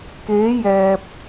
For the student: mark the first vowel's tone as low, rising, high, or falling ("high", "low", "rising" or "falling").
rising